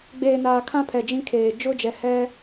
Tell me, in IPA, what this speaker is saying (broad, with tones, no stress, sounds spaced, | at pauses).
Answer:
ɡ͡b eː˨ n aː˨ kʰ ã˦ pʰ ɛ˨ d͡ʒ ĩ˦ kʰ eː˨ d͡ʒ ʊ˦ d͡ʒ ɛ˨ h ɛ˦